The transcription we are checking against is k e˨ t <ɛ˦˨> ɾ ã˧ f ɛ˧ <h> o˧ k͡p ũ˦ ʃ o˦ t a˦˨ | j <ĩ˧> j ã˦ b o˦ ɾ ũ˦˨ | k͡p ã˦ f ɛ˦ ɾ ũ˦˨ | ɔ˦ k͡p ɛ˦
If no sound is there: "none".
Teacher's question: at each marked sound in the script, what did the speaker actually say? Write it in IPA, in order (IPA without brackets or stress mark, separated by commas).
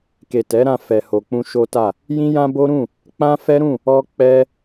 ɛ˨˦, h, ĩ˦